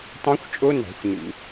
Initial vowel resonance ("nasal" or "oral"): nasal